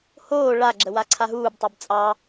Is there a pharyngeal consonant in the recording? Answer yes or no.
no